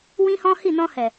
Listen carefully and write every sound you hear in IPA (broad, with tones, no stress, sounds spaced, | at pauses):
w ĩ˦ h ɔ̃˦ h i˦˨ n ɔ̃˧ h ɛ˨